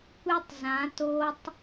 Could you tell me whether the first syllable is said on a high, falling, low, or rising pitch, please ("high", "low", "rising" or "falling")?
high